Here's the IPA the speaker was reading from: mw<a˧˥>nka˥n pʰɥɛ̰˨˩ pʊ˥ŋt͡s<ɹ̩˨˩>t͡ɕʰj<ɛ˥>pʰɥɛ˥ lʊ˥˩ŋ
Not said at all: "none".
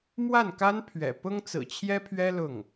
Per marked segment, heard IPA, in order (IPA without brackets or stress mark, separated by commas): a˥˩, ɹ̩˨˩, ɛ˥